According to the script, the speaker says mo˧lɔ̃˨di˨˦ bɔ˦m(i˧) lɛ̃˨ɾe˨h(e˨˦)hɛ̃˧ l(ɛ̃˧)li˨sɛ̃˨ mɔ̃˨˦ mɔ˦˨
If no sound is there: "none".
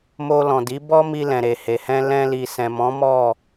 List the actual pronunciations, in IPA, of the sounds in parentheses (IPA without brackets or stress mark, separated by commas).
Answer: i˧, e˨, ɛ̃˧